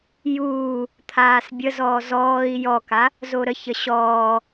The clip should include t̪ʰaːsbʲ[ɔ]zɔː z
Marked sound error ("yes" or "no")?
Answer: yes